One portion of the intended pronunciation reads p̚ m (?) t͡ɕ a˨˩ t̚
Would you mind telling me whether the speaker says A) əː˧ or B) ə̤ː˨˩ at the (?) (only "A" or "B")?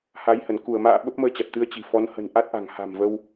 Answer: A